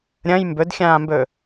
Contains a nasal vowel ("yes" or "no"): yes